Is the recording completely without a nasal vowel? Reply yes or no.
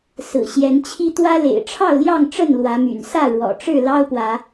yes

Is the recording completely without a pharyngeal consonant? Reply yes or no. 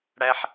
no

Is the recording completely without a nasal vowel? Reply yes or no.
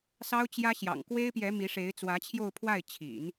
yes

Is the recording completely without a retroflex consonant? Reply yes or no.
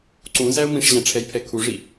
no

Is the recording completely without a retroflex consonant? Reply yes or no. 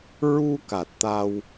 yes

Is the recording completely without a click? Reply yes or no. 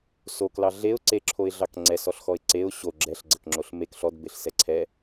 no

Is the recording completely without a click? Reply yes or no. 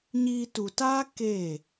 yes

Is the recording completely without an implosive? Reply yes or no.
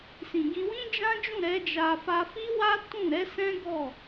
yes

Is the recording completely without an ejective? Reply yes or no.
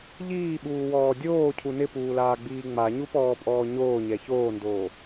no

